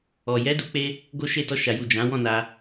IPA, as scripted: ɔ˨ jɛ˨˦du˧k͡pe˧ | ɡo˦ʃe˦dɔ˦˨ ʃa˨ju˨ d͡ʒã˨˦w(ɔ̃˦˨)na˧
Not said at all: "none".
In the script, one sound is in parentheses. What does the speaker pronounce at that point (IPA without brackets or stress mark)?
ɔ̃˦˨